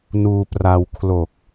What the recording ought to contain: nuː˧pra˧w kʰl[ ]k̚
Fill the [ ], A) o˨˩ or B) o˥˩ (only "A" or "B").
A